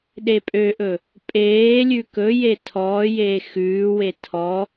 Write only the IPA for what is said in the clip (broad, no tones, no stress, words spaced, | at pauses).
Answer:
ɗepʼøʔɵ | pʼeː lʲʉkɵje tʰɔːjeː xʉːwe tʰɔ